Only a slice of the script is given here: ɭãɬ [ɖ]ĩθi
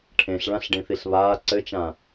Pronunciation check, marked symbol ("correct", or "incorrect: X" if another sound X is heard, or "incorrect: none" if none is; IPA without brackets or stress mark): correct